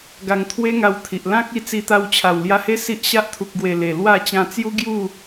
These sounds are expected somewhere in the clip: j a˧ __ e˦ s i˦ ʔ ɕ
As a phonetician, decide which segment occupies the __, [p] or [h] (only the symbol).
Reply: h